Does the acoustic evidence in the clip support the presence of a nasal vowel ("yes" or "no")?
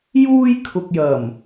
no